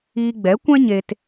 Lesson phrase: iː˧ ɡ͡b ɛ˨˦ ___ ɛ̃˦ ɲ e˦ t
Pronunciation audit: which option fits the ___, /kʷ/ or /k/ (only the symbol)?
kʷ